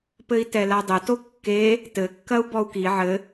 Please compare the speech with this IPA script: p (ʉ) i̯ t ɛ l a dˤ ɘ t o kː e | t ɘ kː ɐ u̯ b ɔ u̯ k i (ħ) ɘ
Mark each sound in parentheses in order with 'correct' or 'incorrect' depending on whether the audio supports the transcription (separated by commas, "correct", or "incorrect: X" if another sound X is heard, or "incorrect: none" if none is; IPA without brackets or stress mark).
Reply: incorrect: ɘ, incorrect: ʕ